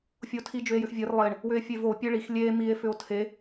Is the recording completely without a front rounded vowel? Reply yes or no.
no